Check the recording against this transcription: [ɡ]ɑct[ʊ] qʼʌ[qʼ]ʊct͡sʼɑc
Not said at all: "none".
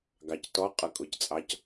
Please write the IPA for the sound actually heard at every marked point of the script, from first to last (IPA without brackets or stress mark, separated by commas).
ɡ, ɔ, kʼ